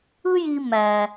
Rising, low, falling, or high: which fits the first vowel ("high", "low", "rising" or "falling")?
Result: high